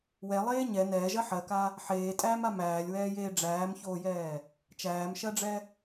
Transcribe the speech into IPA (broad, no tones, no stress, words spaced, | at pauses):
wɛlˠeː ɲɛ nɛːʒɜ ħɜka | ħeːtʼæːma mæːlʲwɛːjeː ɖ͡ʐæːmçoːjɛː | t͡ʃæːmʃɜɖ͡ʐɛ